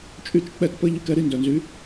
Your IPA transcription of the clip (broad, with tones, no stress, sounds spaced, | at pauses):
t͡ʃʼ y˧ t͡ʃ k͡p ɛ˥˩ t p ə˥ ʎ y˧ k ɛ˧ ɾ i˧ n d œ˩ n z y˩˥